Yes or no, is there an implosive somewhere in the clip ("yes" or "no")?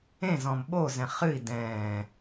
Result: yes